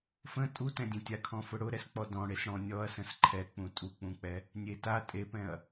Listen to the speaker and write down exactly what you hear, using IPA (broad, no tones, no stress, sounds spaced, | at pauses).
f ə̃ tʼ u t ɛ̃ dʲ ɛ̃ tʲ a kʰ ɔ̃ f ʊ ɽ ʊ ɾ ɛ s k͡p ɔ d ɔ̃ ɽ e s ɽ ɔ̃ nʲ ɔ ɐ̯ s ə̃ s ǃʰ ɛ k͡p ũ tʼ u k͡p ũ k͡p ɛ | nʲ e t a tʼ e p ɛ̃ ɐ̯